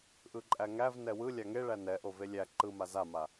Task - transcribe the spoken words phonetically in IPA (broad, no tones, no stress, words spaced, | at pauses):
ʔɯǃʼæŋæv nɛwɯ lʲaŋeɭæ nɛʔo velʲæ ǃɯma zama